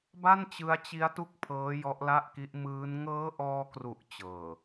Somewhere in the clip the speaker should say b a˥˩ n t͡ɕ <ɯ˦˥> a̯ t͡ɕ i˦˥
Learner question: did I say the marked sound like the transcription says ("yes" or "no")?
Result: yes